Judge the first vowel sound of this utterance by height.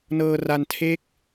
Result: mid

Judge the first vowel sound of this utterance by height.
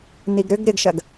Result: high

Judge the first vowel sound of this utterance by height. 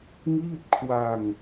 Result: high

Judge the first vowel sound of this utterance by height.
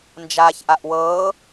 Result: low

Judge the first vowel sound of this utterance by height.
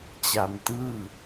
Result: low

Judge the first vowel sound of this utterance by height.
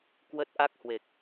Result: mid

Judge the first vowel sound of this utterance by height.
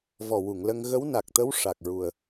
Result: mid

